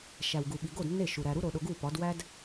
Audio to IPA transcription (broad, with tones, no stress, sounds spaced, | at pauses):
ʃ æ˨ w ɡ u˨ ɓ i˨ ɡ o˦˨ d nː e˦˨ ʃ u˨ ɾ æ˨ ɾ u˦ ɾ o˨ ɗ o˨ ɡ u˦˨ p ɒ˨˦ d w æ˦ d